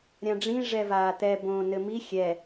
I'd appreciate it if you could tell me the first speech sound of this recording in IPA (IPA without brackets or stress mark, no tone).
ɾʲ